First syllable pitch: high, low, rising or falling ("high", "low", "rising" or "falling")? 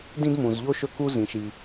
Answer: high